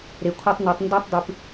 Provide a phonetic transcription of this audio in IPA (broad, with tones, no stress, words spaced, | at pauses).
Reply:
ɾe˨kʷʰa˦tˤno˨˦tˤ ndo˦tˤdˤɨ˨p